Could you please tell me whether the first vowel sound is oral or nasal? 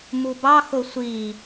oral